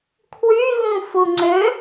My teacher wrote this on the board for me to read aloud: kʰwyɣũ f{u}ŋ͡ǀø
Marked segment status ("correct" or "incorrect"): correct